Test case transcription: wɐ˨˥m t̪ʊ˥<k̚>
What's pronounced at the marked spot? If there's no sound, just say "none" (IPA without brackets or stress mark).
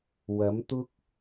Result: k̚